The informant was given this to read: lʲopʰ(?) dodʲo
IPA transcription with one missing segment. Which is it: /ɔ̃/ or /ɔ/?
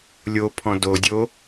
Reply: ɔ̃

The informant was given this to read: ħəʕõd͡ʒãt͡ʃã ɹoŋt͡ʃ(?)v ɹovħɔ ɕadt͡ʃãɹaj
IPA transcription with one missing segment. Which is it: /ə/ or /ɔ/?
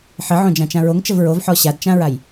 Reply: ə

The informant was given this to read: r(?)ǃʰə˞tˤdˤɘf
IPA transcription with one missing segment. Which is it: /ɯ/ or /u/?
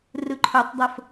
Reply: ɯ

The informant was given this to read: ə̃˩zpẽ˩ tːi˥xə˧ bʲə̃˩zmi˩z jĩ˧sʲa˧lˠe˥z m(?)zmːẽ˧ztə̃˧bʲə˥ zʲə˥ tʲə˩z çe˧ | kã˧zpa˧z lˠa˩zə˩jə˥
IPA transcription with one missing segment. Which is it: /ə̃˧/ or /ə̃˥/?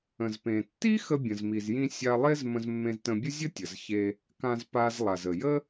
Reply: ə̃˧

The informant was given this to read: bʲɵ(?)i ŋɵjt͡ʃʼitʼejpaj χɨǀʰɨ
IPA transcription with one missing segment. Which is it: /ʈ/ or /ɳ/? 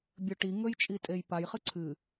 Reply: ʈ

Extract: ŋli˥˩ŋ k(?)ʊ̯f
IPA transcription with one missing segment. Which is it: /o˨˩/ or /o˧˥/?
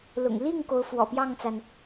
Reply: o˧˥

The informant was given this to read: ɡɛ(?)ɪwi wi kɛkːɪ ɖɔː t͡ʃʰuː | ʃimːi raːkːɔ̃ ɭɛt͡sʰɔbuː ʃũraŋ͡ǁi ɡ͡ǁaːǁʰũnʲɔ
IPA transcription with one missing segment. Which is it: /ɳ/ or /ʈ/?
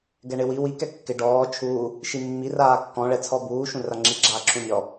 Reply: ɳ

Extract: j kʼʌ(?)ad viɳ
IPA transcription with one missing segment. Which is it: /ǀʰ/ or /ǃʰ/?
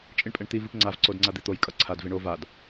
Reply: ǀʰ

